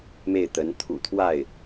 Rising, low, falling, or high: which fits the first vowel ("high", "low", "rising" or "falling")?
falling